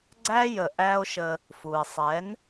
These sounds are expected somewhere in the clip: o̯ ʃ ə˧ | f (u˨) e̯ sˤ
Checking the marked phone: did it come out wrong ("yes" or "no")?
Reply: no